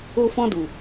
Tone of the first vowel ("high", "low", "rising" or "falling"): high